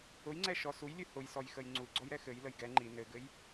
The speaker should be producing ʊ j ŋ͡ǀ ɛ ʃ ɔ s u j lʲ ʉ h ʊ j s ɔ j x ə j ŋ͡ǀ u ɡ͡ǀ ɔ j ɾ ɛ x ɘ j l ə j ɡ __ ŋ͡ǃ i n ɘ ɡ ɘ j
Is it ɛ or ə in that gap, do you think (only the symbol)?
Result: ɛ